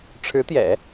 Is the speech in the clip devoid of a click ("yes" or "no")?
yes